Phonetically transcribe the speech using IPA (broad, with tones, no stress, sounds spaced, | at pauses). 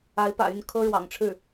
a˧˥ ɪ̯ p ä̰˨˩ y˥˩ n kʰ ɤ˥ ɻ w ɑ̰˨˩ ŋ ʈ͡ʂʰ ɻ̩˥˩